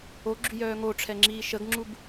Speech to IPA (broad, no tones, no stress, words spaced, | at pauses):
oɡ͡ǁyjœː ŋoʈ͡ʂʰɛŋ͡ǁiː ʃəɡŋ͡ǁub